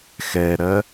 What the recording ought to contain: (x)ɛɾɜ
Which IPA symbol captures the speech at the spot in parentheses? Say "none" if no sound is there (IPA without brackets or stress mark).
x